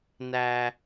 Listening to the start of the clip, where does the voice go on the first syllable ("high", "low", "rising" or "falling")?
low